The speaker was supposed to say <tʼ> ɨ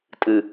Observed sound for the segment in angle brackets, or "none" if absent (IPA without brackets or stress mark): tʼ